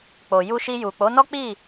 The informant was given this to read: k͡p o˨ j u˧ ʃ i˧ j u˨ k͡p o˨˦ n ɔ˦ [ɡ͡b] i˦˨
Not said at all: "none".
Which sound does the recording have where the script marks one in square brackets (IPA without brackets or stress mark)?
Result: k͡p